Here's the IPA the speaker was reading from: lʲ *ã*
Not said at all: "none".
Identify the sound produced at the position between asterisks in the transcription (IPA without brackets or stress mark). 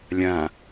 ã